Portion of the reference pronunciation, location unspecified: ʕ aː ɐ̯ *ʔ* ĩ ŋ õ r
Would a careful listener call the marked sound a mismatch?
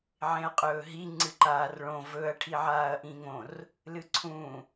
no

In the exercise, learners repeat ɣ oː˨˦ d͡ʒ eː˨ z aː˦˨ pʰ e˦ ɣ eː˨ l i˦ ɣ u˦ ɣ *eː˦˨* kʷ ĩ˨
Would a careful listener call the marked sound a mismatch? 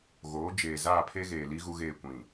no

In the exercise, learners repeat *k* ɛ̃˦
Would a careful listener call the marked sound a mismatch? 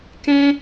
no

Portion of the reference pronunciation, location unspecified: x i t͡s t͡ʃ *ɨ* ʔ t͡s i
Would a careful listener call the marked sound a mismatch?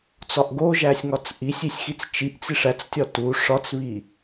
yes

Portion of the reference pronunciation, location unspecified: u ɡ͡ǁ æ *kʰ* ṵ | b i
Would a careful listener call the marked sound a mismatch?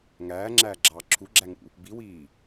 yes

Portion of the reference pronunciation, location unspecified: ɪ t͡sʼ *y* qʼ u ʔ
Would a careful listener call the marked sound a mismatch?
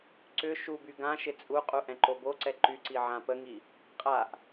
yes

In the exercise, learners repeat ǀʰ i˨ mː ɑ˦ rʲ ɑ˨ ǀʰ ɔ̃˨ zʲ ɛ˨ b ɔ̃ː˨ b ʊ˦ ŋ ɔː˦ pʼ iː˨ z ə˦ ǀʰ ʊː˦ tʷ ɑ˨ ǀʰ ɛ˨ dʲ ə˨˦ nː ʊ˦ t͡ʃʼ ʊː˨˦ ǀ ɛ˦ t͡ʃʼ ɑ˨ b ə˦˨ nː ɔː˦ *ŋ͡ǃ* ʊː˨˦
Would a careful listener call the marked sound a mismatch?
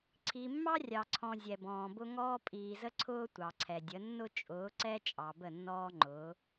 no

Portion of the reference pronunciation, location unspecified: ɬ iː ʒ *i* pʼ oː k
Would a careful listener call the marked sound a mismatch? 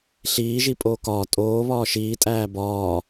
no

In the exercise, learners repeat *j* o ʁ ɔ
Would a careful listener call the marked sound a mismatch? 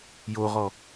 no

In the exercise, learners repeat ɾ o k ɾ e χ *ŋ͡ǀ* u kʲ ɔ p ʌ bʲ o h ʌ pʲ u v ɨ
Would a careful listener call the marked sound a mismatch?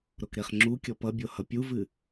yes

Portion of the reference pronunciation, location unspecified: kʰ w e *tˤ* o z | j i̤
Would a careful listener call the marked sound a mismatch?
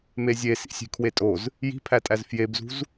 yes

